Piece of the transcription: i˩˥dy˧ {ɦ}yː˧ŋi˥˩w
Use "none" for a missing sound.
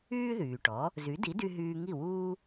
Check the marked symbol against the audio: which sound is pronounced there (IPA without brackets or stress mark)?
ɦ